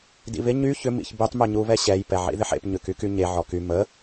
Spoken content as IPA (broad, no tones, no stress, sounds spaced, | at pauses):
d ḭ β ɪ ɲ y ç ʏ m ḭ ç b y tˤ m y ɲ u β ɛ ɕ ɛ j p ɛ ʕ ḭ ð ɪ ħ ḛ p ɲ ʏ k y k y ɲ e ʕ ɔ k y m ə